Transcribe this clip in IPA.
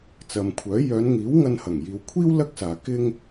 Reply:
t͡sɐ˨mkʷʰœː˨˥ jœː˨˧nŋiː˨˥w ŋɐ˧nhɐ˨˩ŋjiː˨wkʷʰiː˥w lɐ˥k̚saː˨ kɪ˥ŋ

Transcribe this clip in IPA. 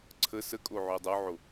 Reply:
ǀʰə səkʼoʕʉ dˤoʕo

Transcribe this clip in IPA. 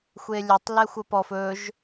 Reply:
xʷelʲɵtˤ lɛxʷəpɔf ɵʒ

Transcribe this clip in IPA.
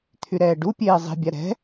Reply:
t̪ʰyɾɛːɖupʲeː zˤi̤bʲa ɾɛ̤

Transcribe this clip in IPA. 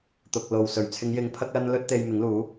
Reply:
t̪ʊ˨k̚lo˨wsɵ˨˩ɥ t͡sʰɪ˨˧ŋjɪ˨˧ŋ pʰɐ˥k̚lɐ˥nlɵ˥t̚ t̪e˧jmɪ˨˥ŋluː˨˥

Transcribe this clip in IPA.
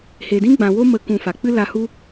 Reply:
he˨dĩ˦ɡ͡bã˨wo˦ mə˧ kũ˧fa˨ k͡pɨ˦la˧hu˦

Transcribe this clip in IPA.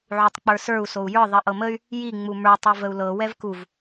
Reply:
ʕutˤk͡pə˞sə˞u̯ sou̯jə˞ ðˤiʔɤməy̯ | ji ŋ͡mumə˞ tˤuvəu̯lɤ wɛvkuv

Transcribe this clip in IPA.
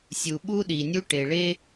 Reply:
sʲu˩ɓu˥ɗi˩nʲu˥ ʈe˩ɭe˥

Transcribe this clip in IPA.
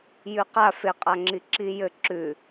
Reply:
jʉqa feqʼaŋ͡ǁi ǁijɘ ǁʉ

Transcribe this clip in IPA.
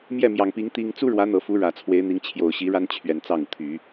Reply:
mjɛ˥˩mjɑ˨˩ŋpi˧˥ŋ t̪i˥ŋ t͡su˥ɻwä˧˥n̪ɤ˨˩ fu˧˥ɻä˨˩ t͡sʰwe˧˥ɪ̯n̪i˧˥ŋ t͡ɕʰjo˨˩ʊ̯ɕi˧˥ ɻa˥nt͡ɕʰɥɛ˨˩n t͡sɑ˥˩ŋu˩t̪ʰy˨˩˦

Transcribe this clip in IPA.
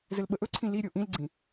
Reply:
zɘlɓəʔɵǀʰĩ li ɾʲoʔĩlɡ͡ǀĩ

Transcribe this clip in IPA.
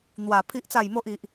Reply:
n̪wa˨˩ pʰi˨ʔt͡sa˨˩jmo˨ʔ i˨ʔ

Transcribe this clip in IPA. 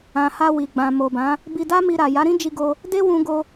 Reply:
ã˨ha˧ wi˨ɡ͡bã˨mo˨bã˨˦ | bi˧da˦mi˧ɾa˨ ja˨˦ɾĩ˦d͡ʒi˧ ɡo˧ | de˦wũ˧ɡo˧

